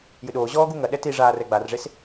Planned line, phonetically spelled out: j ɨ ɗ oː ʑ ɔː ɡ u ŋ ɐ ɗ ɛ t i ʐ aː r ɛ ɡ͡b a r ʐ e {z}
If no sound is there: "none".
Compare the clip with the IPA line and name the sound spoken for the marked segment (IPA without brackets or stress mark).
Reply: s